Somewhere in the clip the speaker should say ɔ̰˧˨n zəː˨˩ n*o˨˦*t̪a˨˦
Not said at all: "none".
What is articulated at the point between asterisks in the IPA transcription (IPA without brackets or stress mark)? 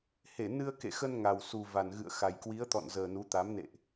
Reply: u˨˦